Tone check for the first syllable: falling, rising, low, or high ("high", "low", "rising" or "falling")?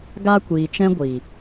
high